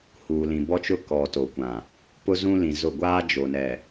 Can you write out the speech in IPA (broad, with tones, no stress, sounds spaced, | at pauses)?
h uː˨ l ĩ˨ b ɔ˦ t͡ʃ ʊ˦ k ɔ˨ t o˨ kʷ ã˨ | p ʊ˦ z ũ˦ l ĩ˨ z ʊ˦˨ ɡʷ aː˦ d͡ʒ o˨ n ɛ˨